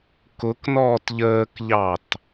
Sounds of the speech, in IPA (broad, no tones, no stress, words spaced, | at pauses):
kʊknɔːt ʎəːkʎɑt